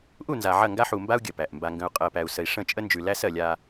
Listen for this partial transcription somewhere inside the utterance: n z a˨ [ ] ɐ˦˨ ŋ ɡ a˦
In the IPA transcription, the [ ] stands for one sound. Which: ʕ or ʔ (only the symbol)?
ʕ